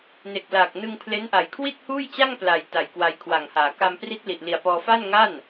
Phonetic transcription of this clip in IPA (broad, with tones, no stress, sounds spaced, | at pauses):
n e˨˩ k̚ l aː˨˩ k̚ n ɯ˧ ŋ pʰ l e˦˥ n ʔ a˨˩ j kʰ w i˥˩ t̚ h uː˥˩ j t͡ɕ a˥˩ ŋ p l a˨˩ j t a˨˩ j k w a˧ j kʰ w a˨˩ ŋ h aː˩˦ k a˧ m p r i˦˥ t̚ l i˨˩ ʔ l i˨˩ a̯ p ɔː˧ f a˥˩ n ŋ a˥˩ n